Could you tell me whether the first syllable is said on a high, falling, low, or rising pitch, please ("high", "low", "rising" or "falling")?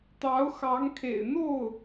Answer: rising